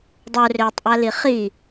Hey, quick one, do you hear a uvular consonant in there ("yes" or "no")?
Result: yes